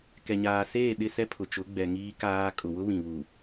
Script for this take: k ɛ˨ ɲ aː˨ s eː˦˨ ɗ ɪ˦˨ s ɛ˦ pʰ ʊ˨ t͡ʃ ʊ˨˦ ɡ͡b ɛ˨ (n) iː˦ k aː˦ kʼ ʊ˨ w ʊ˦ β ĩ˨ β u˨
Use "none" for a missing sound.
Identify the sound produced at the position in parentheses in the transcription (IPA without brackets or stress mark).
ŋ